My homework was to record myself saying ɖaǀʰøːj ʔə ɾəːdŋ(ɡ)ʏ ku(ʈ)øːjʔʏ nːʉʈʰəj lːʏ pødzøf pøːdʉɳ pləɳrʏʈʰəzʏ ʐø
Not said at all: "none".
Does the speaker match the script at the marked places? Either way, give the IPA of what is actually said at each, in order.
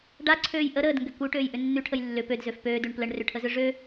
ɡ, ʈ

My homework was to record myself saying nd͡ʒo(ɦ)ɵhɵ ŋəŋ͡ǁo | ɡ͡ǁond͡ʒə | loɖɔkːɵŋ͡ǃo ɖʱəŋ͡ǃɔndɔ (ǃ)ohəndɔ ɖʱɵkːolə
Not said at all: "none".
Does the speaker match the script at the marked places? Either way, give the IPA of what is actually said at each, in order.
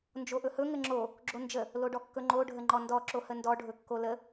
ʔ, ǁ

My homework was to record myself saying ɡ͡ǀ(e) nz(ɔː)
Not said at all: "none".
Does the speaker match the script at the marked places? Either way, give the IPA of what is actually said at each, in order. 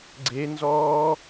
e, ɔː

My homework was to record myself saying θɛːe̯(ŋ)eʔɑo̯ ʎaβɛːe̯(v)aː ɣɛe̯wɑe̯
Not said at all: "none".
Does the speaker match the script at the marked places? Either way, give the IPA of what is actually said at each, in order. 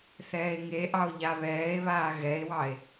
ŋ, β

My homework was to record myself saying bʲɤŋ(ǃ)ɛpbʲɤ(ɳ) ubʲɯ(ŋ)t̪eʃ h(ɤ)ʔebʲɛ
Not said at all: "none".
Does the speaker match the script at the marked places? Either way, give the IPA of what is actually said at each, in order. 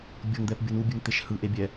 d̪, n, ŋ, ɯ

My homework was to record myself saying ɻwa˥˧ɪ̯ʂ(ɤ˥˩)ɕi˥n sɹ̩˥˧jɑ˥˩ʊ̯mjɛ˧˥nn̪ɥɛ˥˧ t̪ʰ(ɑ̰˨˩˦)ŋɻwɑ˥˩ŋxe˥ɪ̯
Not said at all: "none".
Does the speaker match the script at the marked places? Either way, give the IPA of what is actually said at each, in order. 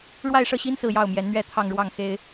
ɤ˥˩, ɑ˥˧

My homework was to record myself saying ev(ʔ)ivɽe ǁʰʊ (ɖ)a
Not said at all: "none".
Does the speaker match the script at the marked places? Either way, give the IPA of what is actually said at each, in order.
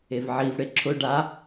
ʕ, ɖ

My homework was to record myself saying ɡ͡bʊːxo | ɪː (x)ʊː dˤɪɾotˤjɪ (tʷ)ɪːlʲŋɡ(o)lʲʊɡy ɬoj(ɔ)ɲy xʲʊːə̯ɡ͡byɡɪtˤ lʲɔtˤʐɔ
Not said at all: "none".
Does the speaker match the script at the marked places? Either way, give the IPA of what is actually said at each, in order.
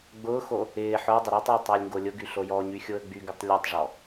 ħ, tˤ, o, ɔ

